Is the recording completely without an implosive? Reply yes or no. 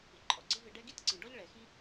yes